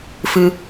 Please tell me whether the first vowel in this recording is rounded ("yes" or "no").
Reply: no